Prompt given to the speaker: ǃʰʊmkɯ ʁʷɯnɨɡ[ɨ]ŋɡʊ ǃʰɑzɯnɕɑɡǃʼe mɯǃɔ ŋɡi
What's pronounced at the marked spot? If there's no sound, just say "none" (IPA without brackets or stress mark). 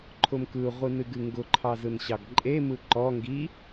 ɨ